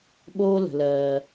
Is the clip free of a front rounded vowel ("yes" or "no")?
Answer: yes